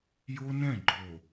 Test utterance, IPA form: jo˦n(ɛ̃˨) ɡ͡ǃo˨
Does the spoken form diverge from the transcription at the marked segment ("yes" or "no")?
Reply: yes